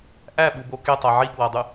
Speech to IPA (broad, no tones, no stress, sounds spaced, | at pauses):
ʔ æ ɓ u b o k e tˤ æ ʕ i k w æ dˤ y